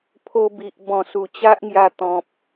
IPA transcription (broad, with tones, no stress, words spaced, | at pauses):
pʰo˧ bi˨ʔ bɔ̃˨˩su˨˩t͡ɕa˦ʔŋja˧ t̪ɔ̃˨p̚